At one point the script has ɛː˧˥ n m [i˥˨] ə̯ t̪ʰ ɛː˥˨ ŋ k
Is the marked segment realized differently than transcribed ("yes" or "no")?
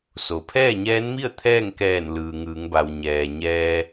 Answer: no